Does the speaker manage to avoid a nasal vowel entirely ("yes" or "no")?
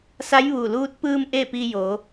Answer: yes